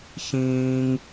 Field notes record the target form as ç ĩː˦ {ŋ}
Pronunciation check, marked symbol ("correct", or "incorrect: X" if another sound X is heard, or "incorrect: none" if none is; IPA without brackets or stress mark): correct